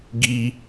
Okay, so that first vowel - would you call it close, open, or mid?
close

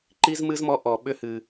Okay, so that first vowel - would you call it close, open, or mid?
close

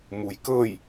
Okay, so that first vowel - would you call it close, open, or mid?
close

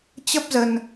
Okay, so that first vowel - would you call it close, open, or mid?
mid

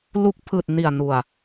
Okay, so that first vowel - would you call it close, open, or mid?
close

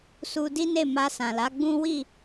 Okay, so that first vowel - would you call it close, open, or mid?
close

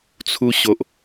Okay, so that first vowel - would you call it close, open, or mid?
close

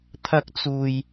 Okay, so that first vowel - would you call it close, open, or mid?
open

